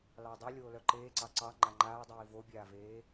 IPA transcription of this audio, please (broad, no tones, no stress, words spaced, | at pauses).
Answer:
lɑdˤu lʲoːlœǃeːǀɑ ǀɑ ŋ͡ǃaŋ͡ǃaːdˤiː vobʲaːveː